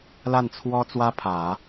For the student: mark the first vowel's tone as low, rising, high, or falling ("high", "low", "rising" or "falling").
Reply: falling